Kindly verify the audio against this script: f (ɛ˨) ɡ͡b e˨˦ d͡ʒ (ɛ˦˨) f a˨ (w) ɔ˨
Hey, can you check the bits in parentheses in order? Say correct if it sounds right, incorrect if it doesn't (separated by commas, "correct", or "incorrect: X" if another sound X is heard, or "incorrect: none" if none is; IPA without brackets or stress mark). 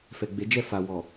correct, correct, correct